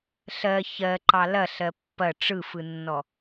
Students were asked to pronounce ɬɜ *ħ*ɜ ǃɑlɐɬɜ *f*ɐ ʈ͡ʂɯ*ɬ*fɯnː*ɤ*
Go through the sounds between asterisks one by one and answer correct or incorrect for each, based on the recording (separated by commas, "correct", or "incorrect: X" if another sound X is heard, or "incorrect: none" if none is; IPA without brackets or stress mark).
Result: incorrect: ç, incorrect: pː, incorrect: none, incorrect: ɔ